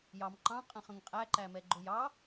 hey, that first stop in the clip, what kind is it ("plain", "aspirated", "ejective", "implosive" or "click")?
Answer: click